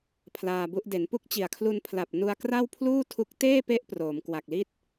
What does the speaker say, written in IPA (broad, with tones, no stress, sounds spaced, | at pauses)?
pʰ l aː˧ b u˦˥ ʔ d e˩˦ n p u˥˩ k̚ t͡ɕ i˨˩ a̯ kʰ l u˧ n pʰ l a˨˩ p̚ n u˧ a̯ k r a˥˩ w pʰ l uː˥˩ tʰ u˦˥ k̚ t eː˥˩ p e˦˥ ʔ p r oː˩˦ m k w a˨˩ k̚ l i˥˩ t̚